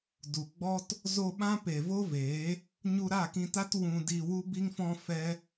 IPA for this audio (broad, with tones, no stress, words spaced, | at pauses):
du˨ɡ͡bɔ˦t | zo˧ ɓã˦ pe˨vo˦veː˨˦ | ɲu˧ɾa˦˨kĩ˧ta˦t wũ˧di˧ wu˦bi˦ŋfɔ̃˦fɛ˦